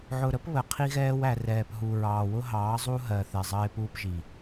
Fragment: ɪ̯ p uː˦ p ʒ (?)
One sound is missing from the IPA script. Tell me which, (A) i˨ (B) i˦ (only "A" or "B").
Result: A